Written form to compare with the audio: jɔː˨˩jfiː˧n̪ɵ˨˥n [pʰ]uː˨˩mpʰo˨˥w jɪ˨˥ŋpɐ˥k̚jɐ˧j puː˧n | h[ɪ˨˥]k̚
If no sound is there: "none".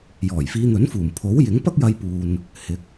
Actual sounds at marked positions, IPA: f, ɪ˨˥

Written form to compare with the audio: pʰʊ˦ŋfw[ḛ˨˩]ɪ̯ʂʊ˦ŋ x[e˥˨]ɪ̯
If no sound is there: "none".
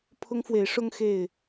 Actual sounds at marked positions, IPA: e˨˦, e˥˨

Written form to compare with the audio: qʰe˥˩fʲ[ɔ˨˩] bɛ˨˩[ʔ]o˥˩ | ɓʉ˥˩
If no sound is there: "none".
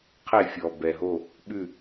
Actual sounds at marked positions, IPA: ɔ˨˩, ɦ

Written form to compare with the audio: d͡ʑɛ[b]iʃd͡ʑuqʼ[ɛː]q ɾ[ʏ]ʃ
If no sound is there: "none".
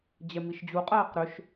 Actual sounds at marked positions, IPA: m, ɛː, ʏ

